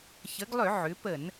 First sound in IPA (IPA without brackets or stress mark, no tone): ç